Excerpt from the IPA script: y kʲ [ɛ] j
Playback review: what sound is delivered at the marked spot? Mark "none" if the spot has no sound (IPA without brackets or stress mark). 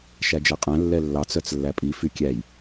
æ